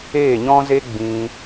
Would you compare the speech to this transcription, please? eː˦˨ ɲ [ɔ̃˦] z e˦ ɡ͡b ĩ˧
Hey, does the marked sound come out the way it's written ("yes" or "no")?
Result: yes